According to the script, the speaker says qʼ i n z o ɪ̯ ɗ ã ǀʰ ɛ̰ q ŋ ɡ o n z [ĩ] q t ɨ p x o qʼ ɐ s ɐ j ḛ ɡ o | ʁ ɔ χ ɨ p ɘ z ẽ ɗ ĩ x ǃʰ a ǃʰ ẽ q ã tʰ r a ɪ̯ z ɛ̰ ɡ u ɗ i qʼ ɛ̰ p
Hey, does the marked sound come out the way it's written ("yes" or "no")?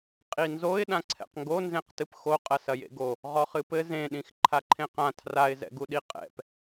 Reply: no